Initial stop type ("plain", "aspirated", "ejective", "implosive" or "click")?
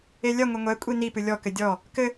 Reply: ejective